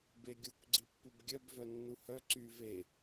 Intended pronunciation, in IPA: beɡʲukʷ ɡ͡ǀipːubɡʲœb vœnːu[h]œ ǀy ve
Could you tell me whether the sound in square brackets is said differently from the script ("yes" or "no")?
no